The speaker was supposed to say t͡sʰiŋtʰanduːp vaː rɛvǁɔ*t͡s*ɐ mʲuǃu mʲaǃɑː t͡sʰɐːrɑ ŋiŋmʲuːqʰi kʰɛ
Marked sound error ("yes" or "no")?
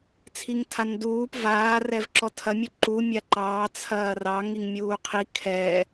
yes